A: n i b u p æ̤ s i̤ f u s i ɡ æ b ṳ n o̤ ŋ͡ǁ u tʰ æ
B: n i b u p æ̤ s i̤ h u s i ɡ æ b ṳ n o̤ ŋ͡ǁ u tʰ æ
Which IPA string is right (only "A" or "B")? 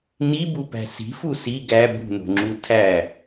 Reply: A